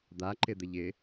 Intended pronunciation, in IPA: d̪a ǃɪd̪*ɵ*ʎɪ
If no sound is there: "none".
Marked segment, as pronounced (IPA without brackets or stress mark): ə